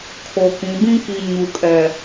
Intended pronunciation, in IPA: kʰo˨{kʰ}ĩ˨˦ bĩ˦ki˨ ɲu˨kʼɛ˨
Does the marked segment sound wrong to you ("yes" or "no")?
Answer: yes